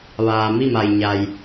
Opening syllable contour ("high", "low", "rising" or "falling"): low